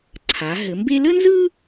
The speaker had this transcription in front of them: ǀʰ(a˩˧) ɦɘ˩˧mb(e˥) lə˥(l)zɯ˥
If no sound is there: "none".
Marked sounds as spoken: a˩˧, e˥, n

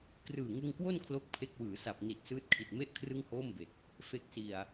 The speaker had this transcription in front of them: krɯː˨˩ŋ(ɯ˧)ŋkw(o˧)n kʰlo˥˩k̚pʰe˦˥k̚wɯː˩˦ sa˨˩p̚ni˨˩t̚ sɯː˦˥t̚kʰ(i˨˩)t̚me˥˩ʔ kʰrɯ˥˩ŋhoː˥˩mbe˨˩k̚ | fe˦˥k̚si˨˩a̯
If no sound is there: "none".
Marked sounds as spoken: ɯ˧, o˥˩, i˨˩

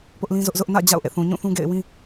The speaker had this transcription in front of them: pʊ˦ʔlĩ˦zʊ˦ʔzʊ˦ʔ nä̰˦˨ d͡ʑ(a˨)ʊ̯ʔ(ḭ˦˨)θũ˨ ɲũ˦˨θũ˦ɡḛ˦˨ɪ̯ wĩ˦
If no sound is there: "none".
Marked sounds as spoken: a̰˦˨, ḛ˦˨

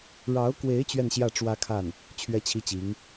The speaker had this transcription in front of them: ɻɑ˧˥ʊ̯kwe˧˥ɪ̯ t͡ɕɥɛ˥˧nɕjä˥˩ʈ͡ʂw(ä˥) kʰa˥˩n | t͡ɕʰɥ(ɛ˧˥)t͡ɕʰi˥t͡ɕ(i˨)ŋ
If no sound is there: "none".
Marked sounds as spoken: ä˥, ɛ˥, i˧˥

